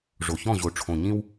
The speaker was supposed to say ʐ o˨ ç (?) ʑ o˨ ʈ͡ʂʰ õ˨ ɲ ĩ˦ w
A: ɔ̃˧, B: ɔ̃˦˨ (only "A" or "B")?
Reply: B